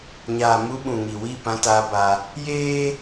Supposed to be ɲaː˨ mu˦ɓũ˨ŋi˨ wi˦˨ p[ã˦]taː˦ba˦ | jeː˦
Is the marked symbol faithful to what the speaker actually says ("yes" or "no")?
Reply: yes